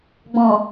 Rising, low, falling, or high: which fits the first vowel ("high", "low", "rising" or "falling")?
low